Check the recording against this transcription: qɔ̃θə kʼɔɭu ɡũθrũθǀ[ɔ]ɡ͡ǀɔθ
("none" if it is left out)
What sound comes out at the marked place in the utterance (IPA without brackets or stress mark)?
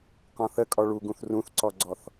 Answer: ɔ